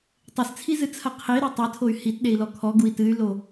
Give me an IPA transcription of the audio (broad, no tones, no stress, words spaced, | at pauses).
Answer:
tˤɘst͡sʰizɨt͡sʰɐ qʰiɾu tˤɘtʰoy̯ hitɗei̯lɔ kʰɔɡui̯ tɨy̯lo